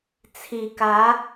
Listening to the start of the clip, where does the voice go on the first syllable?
low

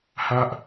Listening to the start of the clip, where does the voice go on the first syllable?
high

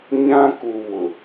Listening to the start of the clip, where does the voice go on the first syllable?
high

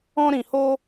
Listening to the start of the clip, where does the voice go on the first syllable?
high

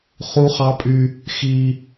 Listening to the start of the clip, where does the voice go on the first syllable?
high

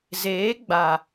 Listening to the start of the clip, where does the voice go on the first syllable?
rising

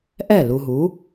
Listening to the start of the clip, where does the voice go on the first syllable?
falling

